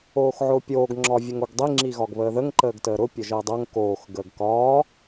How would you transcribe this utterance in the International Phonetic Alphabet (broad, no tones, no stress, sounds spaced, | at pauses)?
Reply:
oː x ʕ ʊː pʲ oː ɡ ŋ͡ǁ ɒ vʲ ə ŋ o ɡ dˤ i ŋ͡ǁ i ɣ ɒ ɡ β əː ð ə ŋ ǃ əː ɡ t əː ɾ ʊ pʲ ʊ ʒ əː dˤ o ŋ k oː x ɡ əː ɡ k ɒː